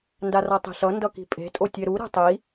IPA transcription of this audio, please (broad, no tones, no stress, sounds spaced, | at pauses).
n d a r a tˤ i̤ ɬ ʌ n d ʌ k i̤ pʼ e̤ tʼ o tʲ ɛ ɾ u ɾ e̤ tˤ i